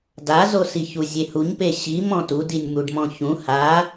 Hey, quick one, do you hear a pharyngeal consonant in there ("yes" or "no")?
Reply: no